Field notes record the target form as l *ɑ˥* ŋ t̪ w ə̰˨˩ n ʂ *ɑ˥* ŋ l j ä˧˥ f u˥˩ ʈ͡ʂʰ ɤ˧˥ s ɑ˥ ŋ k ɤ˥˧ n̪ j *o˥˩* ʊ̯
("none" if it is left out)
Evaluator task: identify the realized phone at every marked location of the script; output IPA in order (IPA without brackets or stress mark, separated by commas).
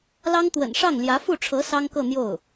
ɑ˥, ɑ˥˩, o˥˩